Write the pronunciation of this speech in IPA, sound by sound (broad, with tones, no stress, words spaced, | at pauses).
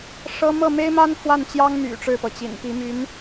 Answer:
ʂɤ˥ mɤ˥˩me˥ɪ̯ma˥n fwa˥˩nt͡ɕjɑ˥ŋ my̰˨˩ ʈ͡ʂɻ̩˥˩pɤ˩t͡ɕḭ˨˩npi˧˥ my˧˥n